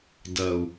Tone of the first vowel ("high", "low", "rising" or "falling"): low